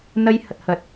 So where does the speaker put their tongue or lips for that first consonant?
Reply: tongue tip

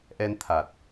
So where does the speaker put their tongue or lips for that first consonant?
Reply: throat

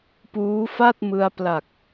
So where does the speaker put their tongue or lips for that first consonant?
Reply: lips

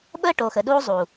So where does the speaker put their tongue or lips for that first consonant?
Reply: lips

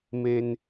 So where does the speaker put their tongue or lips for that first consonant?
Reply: lips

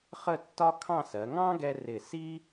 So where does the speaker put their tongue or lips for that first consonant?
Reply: uvula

